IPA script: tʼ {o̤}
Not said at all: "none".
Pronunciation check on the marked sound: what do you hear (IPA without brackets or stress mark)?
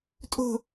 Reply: o̤